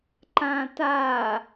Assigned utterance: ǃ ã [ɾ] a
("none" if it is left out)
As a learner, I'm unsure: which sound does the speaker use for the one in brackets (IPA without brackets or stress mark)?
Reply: t